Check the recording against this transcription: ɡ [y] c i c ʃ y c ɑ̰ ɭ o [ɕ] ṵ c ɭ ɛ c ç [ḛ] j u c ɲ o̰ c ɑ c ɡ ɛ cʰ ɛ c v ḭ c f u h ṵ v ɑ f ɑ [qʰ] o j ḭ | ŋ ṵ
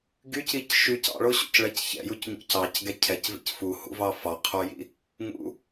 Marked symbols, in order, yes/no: yes, yes, no, yes

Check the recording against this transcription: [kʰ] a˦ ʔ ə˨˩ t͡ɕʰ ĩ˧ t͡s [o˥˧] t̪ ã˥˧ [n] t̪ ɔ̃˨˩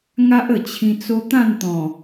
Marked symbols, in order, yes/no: no, no, yes

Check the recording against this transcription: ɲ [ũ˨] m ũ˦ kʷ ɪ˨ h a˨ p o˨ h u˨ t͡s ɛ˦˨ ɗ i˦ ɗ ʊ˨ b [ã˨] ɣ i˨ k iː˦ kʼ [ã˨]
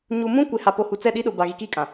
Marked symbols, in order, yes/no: no, no, yes

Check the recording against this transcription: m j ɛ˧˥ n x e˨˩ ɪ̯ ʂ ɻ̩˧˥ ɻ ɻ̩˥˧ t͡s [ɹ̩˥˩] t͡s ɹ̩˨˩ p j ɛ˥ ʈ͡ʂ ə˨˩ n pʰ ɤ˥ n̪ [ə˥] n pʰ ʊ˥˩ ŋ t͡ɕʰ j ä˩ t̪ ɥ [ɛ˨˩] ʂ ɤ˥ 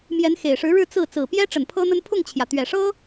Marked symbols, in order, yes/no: yes, yes, yes

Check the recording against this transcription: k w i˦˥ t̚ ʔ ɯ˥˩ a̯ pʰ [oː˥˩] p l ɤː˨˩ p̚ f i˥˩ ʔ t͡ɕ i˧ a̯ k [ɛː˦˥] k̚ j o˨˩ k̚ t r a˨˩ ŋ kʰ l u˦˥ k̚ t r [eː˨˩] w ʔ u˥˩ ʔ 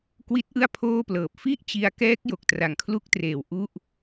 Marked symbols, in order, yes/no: yes, yes, yes

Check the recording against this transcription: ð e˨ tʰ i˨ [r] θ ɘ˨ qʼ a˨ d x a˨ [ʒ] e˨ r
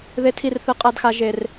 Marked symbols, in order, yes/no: yes, yes

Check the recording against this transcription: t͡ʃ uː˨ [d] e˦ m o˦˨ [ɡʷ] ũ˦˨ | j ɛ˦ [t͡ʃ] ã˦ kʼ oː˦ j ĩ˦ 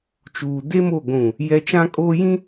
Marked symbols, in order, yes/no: yes, yes, yes

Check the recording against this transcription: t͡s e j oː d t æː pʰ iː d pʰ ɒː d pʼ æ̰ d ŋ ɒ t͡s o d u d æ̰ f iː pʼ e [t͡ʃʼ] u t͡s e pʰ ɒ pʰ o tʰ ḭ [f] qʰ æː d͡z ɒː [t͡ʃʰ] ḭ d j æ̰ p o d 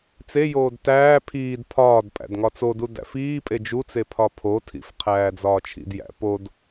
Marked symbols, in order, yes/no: no, yes, yes

